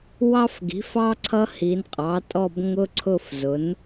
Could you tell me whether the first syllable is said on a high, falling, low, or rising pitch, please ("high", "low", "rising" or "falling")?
high